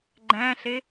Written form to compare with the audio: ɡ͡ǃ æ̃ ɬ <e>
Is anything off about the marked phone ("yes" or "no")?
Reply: no